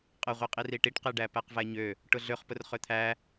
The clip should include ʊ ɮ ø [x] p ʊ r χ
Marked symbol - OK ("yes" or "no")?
no